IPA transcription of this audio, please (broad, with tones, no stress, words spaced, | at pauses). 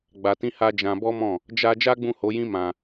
ɡ͡ba˧tĩ˦ha˦ d͡ʒã˧bɔ˦mɔ̃˦˨ | d͡ʒa˧ d͡ʒa˦ɡ͡bũ˦˨ho˨˦jĩ˦ mã˧